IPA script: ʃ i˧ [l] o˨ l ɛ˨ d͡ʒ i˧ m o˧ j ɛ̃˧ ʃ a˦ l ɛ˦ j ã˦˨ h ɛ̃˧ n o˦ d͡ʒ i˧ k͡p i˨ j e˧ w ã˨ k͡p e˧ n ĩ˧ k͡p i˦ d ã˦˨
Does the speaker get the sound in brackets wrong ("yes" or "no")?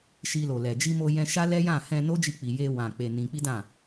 no